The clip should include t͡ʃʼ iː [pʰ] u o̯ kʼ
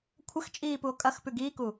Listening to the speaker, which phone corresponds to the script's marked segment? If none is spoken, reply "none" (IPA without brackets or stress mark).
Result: p